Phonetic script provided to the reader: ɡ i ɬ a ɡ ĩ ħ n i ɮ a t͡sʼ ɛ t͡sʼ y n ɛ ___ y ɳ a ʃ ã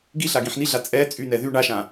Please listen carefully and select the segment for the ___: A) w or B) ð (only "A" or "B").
B